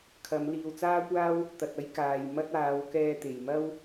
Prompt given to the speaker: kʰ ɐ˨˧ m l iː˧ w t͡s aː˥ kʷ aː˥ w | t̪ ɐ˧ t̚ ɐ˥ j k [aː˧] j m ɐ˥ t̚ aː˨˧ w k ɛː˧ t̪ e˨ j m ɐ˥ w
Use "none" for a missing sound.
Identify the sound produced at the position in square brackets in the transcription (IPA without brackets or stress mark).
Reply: aː˧